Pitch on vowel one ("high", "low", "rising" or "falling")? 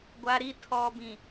low